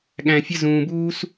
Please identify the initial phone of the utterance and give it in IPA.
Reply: ɠ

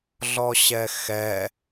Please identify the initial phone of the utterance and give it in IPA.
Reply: ɮ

